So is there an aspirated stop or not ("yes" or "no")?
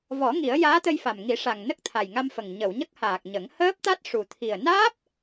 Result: yes